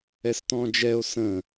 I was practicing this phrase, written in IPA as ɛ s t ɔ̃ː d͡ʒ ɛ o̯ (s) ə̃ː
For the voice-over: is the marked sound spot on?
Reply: yes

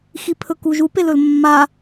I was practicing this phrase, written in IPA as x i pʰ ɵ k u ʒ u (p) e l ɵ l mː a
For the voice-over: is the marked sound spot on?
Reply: yes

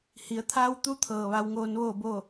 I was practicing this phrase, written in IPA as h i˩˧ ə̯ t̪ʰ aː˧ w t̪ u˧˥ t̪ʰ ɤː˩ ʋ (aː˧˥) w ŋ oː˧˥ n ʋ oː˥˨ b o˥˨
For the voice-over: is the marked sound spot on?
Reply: no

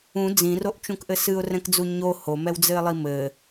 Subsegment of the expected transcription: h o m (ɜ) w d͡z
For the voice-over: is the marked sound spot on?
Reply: no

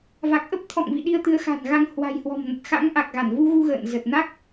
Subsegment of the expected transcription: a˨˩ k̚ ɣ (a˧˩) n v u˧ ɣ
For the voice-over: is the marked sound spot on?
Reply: yes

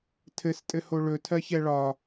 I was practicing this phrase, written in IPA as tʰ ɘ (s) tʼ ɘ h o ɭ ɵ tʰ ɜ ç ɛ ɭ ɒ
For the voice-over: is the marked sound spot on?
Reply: yes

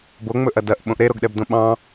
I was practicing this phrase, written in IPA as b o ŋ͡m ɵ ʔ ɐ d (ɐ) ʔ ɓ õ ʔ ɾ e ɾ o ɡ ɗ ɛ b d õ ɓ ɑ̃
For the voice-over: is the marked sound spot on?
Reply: yes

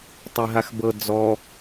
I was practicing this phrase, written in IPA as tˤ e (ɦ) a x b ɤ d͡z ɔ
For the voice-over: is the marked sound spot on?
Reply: yes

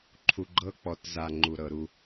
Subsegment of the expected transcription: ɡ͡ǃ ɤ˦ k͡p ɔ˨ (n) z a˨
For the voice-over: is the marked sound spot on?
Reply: no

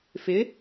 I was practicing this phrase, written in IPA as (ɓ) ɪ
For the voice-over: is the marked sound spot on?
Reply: no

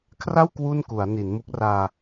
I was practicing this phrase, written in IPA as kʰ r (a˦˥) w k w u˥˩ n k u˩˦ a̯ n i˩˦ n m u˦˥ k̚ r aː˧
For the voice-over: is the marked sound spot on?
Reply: no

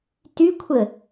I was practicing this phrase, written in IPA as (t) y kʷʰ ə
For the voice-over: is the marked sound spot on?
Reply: yes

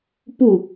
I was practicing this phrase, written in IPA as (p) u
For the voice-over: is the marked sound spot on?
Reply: yes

